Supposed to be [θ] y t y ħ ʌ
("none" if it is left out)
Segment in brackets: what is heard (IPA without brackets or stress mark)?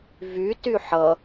v